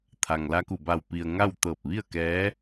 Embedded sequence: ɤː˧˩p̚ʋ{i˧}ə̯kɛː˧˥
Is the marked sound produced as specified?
no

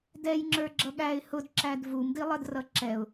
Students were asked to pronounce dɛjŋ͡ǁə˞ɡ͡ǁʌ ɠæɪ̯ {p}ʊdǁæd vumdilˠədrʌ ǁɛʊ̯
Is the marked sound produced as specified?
no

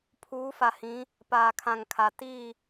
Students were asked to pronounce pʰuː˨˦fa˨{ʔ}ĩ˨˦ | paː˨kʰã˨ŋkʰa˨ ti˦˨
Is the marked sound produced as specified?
no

